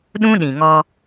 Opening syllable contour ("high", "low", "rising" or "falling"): high